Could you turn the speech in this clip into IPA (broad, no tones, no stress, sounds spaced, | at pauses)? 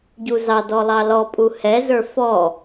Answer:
ɟ u z ɑ d ɔ lˠ ɑ l ɔ pʼ u h ɛ z ə˞ f ɔ